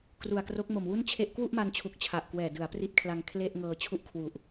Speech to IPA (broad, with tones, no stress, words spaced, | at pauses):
kru˨˩a̯kro˦˥k̚mo˨˩m wu˥˩nt͡ɕʰe˥˩ʔ kwu˥˩ʔma˧nt͡ɕʰu˨˩k̚ t͡ɕʰa˨˩ʔkwɛː˨˩ dɯ˩˦a̯pri˦˥t̚kʰla˧ŋ kʰle˥˩ʔŋɤː˧ t͡ɕʰu˥˩ʔkʰwu˨˩ʔ